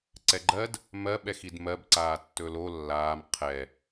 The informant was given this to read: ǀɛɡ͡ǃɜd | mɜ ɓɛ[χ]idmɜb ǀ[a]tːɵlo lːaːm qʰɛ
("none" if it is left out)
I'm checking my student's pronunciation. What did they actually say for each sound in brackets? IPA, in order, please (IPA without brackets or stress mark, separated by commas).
x, aː